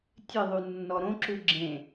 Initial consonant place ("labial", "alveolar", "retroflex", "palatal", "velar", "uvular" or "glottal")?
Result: alveolar